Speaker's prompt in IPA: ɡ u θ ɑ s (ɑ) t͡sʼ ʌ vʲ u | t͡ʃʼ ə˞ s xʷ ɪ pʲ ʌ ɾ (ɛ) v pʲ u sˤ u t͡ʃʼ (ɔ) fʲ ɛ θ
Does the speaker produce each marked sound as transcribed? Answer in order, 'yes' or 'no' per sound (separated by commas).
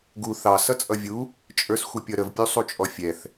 no, no, yes